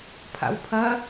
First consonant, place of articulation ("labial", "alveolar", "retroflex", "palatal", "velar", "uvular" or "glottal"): labial